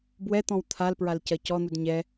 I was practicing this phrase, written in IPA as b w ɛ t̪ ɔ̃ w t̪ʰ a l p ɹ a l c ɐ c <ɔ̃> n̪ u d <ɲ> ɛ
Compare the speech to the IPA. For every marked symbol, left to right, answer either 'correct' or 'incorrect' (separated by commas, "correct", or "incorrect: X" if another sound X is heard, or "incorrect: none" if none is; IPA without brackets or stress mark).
incorrect: ɔ, correct